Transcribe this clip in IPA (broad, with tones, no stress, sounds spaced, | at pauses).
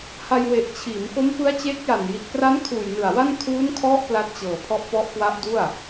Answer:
h a˧ j w e˨˩ ʔ t͡ɕʰ iː˩˦ m k o˦˥ m p ɯ˦˥ a̯ t͡ɕ eː˦˥ k̚ j a˨˩ n j i˨˩ t̚ k r a˦˥ n kʰ uː˨˩ j n ɯ˨˩ a̯ w a˥˩ n kʰ uː˦˥ n kʰ ɔ˦˥ ʔ p l a˦˥ t̚ t͡ɕ ɤː˨˩ pʰ ɔ˥˩ ʔ p ɔ˦˥ ʔ k w a˦˥ ʔ d u˥˩ a̯